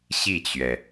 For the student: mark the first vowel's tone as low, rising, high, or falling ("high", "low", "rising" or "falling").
falling